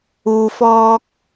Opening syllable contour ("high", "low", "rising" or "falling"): low